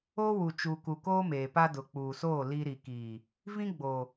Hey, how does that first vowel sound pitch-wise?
high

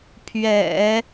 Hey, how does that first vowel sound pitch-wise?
low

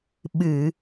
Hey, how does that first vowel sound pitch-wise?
low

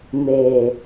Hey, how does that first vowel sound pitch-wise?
low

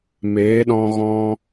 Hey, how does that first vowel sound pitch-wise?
rising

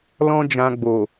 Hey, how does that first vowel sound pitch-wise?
high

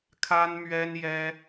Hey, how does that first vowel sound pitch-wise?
high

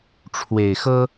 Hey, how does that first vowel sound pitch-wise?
low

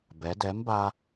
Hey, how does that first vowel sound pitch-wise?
rising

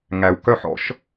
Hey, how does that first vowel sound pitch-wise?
low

